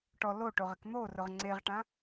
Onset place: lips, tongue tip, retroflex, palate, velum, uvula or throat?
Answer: retroflex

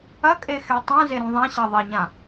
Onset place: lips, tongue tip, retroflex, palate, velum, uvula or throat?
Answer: velum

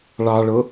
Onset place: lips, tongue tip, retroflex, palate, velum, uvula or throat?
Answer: retroflex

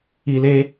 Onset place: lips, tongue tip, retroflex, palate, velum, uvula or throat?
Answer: tongue tip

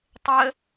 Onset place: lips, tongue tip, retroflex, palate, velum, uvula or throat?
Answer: tongue tip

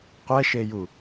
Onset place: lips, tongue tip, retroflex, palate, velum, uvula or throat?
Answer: uvula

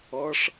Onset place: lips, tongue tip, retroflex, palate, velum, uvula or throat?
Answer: retroflex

